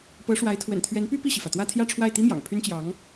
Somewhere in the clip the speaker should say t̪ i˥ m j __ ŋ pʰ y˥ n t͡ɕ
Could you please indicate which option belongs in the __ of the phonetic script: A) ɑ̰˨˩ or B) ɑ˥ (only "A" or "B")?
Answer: A